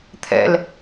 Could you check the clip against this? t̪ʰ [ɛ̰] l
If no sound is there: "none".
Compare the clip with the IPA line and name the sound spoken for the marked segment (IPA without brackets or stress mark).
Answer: ɛ̰